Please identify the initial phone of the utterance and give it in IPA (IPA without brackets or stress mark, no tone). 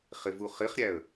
χ